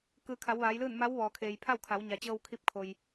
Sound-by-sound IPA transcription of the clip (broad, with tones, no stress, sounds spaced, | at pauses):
k ɯː˩˧ kʰ a˩˧ w ʋ aː˩˧ j l ɯː˥˨ n m a˧˥ w ʋ ɔː˩ kʰ eː˩ j pʰ a˥˨ w kʰ a˩˧ w ɲ a˩ t͡ɕ ɤː˧ w kʰ i˧ p̚ kʰ o˩ j